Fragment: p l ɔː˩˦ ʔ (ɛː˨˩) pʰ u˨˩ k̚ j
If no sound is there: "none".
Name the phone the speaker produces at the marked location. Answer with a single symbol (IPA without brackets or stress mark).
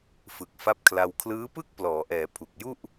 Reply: ɛː˩˦